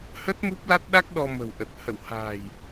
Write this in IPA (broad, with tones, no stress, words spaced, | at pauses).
hə˦˥t̚mu˦˥p̚la˦˥t̚ɗa˦˥k̚ ɗɔ˧mə̤˨˩wʔə˨˩t̚ hə̰˧˨wha̤ː˨˩j